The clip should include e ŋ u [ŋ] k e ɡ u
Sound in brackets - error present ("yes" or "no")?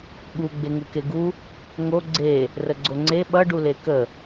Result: yes